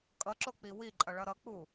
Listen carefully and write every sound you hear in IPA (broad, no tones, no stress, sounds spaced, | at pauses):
kʼ ʌ ǁ o k͡p i w i ǃʼ ʌ ɭ ʌ ɾ ʌ k͡p u